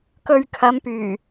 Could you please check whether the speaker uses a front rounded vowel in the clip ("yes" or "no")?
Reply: yes